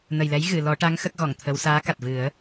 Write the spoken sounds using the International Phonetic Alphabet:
nə˨˩jlɛ˧˥j ɣɨ˨˩˨ lɔ˨˩˦ʈa˧˥ŋ xə˦˥k̚ɣɔ˨˩˨ŋt̪ʰə˧˥w saː˧˥ ka˨˩t̚vɨ˨˩˦ə̯

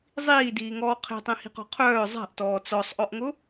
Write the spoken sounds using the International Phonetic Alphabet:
zˤiːdiːŋɔː qʰe̤tˤẽhi̤qɔ̤ qʰœː zˤa̤ʔtɔː t͡sɔsˤʔɔʔŋʊ

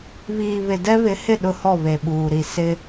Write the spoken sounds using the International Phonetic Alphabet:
βiː˨βɪ˨ dɛ˦βɪ˨˦hɪ˦˨ ɗʊ˦hɔ˦˨ βe˨ɓuː˨ɾi˨ sɪ˦

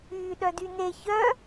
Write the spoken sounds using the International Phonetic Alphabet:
yːɗœdyne çœ

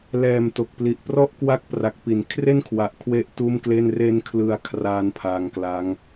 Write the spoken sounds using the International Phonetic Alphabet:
lɛː˨˩mto˨˩k̚pli˨˩ʔ prɔ˦˥ʔkwa˦˥k̚pra˨˩k̚ pi˩˦n kʰre˥˩nkʰwa˨˩ʔ kʰwe˥˩ʔtuː˥˩mkle˥˩n re˦˥nkʰlɯ˧a̯kʰraː˧n pʰaː˧ŋkla˦˥ŋ

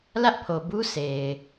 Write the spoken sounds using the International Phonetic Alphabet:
lä˦ʔpʰo˨bu˦ se˨ɪ̯

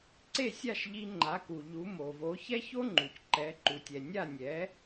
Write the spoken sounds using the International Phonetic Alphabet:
ǀe˥˩sʲa˥˩ʃʎi˧ ŋ͡ǃa˩˥ku˩ʎu˩˥ mo˩vo˩˥ çɛ˥ço˥ ŋ͡ǃu˩c ǃɛ˩˥ ǃu˩tʲɛ˩ nʲa˥˩nʲɛ˩˥

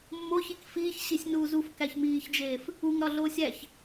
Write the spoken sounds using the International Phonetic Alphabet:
mːoçik fiːç ɕisʲnuːzuf kæçmiːçd͡ʒeːf | uŋɾɒɮoːsʲ æç

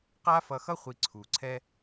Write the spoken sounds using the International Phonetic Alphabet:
qa˥fʌ˧xʌ˥ χʷi˧ǀʰu˨˩ǀʰɛ˥

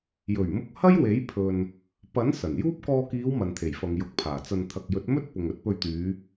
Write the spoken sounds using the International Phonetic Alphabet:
jɵ˨˩ɥmʊ˧k̚ hɐ˥jwe˨˥jpʰɵ˨n | pɐ˨˥n sɐ˨˩njuː˥p̚ kɔː˧kiː˨˧w mɐ˨nt̪ʰe˨˩jfɐ˨ŋ jʊ˨˥k̚pʰaː˨˩t͡sɐ˧n t̪ʰɐ˨k̚jɵ˨˥t̚mɵ˥t̚ pʊ˨ŋɵ˧t̚ pɵ˧ɥt̪yː˨˧

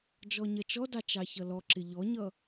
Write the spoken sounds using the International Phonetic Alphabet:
d͡ʒɔɲɜt͡ʃɔdɑ t͡ʃɑçʌlɔǁɪ ʎɔɲʌ

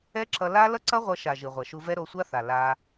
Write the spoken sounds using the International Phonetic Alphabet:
ɛ˦ǁʌ˧ la˦ lʌ˦ǀʌ˦ ʁʷʌ˧ʃa˨ ʒɯ˨ʁʷɛ˨ʃu˧vɛ˦ ɾo˧sʷa˦θa˨ la˧

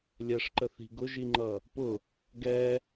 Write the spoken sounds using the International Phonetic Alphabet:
lʲɛʂǃə θi̤ɡʊʒiŋ͡ǃʌ | pʊ | ɡɛ

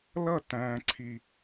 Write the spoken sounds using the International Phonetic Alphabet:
lʌ˦˨ tæ̃ː˨ǀʰi˨

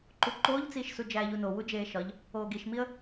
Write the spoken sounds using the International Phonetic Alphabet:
ǃuǃoːʎt͡siːʃsu d͡ʒæːʎuno wud͡ʒeːʃɒʎ | oːɡiʃmiə̯

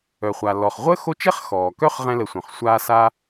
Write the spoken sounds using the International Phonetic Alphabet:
œ˩χʷa˩ lɔ˩χʁʷəː˥xo˦t͡ʃɛ˥χ xɔː˩kœ˦χ ʁɛ̃˦lə˨sʷœ̃˩χ sʷaː˥sa˥

